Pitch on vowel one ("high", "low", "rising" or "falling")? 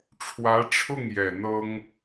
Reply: rising